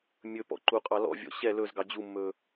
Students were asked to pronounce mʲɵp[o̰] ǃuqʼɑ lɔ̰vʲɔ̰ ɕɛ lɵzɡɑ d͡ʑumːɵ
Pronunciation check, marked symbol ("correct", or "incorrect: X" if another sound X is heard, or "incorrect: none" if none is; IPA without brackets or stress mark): incorrect: ɔ̰